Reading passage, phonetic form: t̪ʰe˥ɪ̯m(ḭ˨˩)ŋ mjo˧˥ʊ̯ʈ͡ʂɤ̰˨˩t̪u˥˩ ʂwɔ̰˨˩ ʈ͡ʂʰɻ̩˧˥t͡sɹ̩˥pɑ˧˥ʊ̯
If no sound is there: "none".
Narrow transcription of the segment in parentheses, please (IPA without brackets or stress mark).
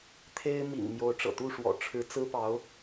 ḭ˨˩